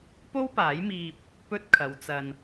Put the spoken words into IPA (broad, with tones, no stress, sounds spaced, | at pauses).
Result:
p o˥ w p aː˨˥ j m iː˧ p̚ | p ɵ˥ t̚ kʰ ɐ˨˧ w t͡s ɐ˨ n